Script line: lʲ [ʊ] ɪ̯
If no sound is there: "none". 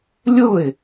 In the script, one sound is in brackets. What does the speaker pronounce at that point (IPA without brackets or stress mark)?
ʊ